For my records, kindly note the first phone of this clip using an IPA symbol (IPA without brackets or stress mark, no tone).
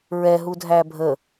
ɹ